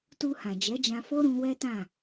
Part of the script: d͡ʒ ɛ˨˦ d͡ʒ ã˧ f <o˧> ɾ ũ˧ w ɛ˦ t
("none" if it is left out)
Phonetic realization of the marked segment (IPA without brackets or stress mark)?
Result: o˦